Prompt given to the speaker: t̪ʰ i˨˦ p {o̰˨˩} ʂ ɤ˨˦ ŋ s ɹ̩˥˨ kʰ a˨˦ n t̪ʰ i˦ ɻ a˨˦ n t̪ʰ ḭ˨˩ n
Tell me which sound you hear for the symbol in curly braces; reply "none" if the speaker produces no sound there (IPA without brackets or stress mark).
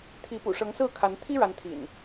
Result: ṵ˨˩